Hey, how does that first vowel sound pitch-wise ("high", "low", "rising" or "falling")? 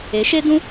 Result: rising